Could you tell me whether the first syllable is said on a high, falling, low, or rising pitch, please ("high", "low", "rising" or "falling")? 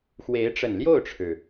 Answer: rising